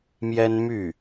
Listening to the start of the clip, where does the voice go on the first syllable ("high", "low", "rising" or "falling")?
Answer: high